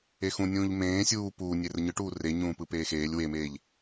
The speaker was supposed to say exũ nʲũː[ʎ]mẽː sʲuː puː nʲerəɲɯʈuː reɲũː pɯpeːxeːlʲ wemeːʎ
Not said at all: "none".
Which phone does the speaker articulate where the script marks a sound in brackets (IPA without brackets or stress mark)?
ʎ